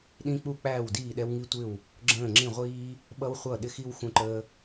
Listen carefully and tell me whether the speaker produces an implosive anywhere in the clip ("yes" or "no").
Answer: yes